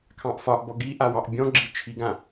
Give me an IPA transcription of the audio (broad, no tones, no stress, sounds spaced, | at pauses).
kʰ ɑ̃ ʔ f ɒ ʔ b ɔ ɡ i ʔ a w ɑ ʔ bʲ ɔ̃ ɡ͡ǁ i t͡ʃʰ i ɡ ã